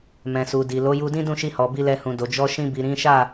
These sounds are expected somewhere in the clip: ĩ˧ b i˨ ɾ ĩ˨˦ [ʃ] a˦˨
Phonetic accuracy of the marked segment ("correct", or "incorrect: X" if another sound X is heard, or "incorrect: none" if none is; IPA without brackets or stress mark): correct